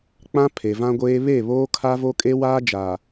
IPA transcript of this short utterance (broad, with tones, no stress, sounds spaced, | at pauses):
k͡p ã˦ pʰ e˨ v ã˦ ɡʷ eː˦ β e˦˨ β oː˦ kʰ a˦ v o˦ kʼ e˦ w aː˦ d͡ʒ aː˨